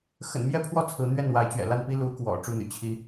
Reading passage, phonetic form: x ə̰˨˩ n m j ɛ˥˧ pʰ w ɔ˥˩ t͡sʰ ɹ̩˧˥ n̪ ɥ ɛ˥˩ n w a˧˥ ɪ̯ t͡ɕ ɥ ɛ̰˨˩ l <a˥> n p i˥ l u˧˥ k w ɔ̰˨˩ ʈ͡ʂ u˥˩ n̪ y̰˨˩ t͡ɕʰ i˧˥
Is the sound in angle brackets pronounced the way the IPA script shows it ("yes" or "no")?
no